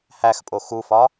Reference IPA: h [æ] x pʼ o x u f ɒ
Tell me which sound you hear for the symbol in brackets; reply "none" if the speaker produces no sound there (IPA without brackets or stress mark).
æ